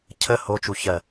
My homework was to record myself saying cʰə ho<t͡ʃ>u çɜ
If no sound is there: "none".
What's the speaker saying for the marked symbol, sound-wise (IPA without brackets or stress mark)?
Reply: t͡ʃ